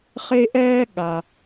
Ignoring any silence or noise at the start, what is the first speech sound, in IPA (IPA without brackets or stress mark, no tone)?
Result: χ